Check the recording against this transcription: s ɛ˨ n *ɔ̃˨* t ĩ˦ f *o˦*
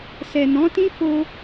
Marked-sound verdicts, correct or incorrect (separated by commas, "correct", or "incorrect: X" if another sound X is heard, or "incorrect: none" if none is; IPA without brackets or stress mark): incorrect: ɔ̃˨˦, correct